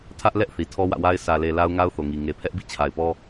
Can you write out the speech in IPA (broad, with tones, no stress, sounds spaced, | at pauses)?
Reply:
tʰ ä˦ ʔ l ɛ˦ ʔ θ i˨ tʰ ɔ˦ w ä̰˦˨ w a˦ ɪ̯ sʰ ä˨ l e˨ l a˦ ʊ̯ ŋ a˦ ʊ̯ θ o˨ ŋ i˨ ŋ e˨ pʰ ɛ˦ ʔ b ḭ˦˨ t͡ɕʰ a˨ ɪ̯ p ɔ˦